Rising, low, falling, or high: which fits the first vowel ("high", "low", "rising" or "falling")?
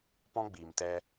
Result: high